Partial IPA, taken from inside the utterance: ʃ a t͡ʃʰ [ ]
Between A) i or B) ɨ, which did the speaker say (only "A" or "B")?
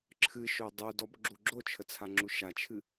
B